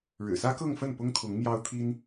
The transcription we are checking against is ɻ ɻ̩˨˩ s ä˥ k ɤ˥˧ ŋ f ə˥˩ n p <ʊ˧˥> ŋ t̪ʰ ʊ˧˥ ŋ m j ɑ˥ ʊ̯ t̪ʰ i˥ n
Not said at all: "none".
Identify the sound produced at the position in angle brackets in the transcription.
ʊ˥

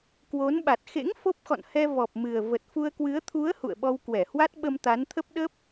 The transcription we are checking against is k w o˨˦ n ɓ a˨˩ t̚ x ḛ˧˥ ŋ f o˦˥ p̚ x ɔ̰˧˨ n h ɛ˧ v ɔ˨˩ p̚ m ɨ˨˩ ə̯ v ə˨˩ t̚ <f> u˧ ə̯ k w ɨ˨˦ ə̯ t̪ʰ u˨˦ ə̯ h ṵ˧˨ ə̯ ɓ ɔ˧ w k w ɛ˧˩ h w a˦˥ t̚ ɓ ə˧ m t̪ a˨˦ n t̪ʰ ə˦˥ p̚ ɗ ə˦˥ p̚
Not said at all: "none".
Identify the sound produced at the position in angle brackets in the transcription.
f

